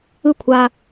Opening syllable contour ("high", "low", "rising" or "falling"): falling